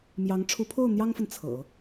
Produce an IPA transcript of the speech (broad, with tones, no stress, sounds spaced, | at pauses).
m j ɑ˧˥ ŋ ʈ͡ʂʰ u˧˥ pʰ o˥˩ ʊ̯ n̪ j ɑ˥ ŋ f ə˨ n t͡sʰ ɤ̰˨˩˦